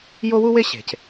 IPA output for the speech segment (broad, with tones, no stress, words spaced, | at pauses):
jo˦wu˦we˦ ɕe̤˨c